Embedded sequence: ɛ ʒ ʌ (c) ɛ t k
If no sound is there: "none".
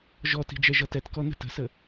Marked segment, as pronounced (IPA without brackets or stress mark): t